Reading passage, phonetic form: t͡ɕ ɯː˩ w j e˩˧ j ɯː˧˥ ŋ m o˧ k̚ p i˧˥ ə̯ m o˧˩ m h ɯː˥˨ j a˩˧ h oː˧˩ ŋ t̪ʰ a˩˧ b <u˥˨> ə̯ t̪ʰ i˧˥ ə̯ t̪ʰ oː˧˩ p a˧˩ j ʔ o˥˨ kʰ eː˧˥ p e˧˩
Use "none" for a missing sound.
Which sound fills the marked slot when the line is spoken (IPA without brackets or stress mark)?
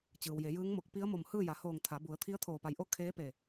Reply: u˩˧